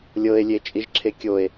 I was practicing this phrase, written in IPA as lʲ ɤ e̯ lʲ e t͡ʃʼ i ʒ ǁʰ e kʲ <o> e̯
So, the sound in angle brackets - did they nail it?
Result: yes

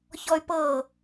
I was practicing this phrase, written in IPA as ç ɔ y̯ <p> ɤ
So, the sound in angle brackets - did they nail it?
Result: yes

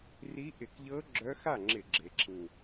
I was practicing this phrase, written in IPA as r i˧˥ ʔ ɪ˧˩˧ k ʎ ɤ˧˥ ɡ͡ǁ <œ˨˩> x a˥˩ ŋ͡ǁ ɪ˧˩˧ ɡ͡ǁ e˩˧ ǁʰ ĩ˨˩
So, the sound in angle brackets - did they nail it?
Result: no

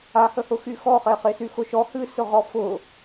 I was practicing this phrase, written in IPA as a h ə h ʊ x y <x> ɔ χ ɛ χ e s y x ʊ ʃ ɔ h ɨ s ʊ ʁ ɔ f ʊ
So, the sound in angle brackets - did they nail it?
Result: yes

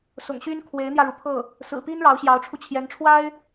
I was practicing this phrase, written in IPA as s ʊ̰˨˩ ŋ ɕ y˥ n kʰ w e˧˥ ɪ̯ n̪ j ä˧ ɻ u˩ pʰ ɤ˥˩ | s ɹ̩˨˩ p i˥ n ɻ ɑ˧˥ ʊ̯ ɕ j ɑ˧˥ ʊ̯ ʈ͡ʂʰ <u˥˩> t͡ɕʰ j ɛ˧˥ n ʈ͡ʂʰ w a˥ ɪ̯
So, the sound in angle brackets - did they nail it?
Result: no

